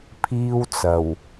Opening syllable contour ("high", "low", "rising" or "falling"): high